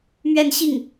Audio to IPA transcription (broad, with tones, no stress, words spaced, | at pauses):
mɥɛ˥˧nɕi˥˩ŋ